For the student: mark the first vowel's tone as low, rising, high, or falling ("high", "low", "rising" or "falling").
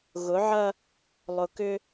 rising